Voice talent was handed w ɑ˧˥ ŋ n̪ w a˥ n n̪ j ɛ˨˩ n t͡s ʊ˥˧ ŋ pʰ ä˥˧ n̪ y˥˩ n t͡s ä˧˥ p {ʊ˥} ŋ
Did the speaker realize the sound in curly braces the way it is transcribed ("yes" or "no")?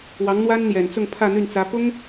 yes